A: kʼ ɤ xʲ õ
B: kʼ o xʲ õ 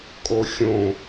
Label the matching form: B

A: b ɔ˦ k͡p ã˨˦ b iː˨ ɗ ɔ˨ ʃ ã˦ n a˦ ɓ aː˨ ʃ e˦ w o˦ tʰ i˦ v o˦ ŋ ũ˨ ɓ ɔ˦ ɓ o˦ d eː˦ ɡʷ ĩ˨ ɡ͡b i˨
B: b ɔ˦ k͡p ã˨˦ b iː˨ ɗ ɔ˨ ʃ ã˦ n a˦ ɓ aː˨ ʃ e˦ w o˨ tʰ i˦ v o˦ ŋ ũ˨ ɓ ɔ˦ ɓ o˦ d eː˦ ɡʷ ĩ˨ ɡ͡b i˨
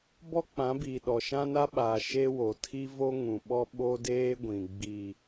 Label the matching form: B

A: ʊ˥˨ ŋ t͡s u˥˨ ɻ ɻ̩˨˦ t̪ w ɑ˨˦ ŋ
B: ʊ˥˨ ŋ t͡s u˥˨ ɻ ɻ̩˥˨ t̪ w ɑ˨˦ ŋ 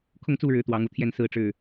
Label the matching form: A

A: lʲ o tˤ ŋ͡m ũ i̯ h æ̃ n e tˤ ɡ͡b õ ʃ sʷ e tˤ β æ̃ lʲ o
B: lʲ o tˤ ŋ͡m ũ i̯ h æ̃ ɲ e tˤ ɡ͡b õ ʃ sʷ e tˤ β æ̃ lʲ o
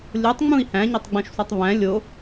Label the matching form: B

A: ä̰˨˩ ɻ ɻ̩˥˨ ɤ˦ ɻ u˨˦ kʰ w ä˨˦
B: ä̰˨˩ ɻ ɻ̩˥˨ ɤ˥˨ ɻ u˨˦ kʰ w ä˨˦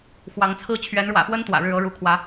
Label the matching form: A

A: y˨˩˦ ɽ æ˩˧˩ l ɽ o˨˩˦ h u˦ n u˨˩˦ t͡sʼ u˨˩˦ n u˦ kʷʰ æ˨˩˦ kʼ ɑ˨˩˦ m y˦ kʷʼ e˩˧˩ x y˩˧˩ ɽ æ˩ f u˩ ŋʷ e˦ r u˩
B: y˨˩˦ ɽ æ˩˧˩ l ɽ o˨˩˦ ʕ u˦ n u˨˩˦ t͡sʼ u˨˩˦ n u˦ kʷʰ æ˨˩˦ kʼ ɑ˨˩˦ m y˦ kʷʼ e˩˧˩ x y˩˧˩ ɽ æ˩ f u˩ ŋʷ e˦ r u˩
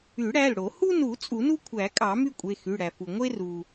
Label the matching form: A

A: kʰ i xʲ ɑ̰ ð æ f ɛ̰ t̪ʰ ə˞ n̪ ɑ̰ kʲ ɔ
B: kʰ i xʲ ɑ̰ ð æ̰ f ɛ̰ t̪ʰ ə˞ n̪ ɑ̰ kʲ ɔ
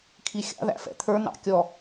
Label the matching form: B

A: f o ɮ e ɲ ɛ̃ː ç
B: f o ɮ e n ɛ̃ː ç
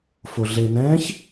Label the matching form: B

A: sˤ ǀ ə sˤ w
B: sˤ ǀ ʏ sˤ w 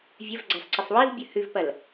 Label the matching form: A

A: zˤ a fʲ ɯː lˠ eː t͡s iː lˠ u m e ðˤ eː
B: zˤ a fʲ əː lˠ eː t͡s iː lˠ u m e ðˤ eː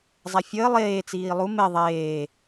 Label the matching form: B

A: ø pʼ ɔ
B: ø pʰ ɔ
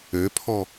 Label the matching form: B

